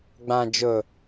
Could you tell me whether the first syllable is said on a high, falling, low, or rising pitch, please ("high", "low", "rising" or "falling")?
low